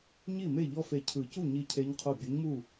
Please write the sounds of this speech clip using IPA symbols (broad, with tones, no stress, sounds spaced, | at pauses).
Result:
ɲ i˥˩ m e˥˩ ʎ ɔ˦˥ f e˧˩ cʰ ɯ˨˩˦ c u˥˩ ɲ i˥˩ cʰ e˦˥ ɲ qʰ o˥˩ bʲ ɯ˨˥ ɲ m u˥˩